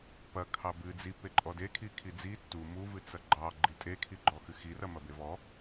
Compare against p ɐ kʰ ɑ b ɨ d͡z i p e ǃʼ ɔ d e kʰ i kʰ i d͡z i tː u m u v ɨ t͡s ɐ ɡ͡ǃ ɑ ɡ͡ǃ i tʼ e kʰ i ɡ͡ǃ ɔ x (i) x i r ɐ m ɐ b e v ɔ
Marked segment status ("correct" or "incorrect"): incorrect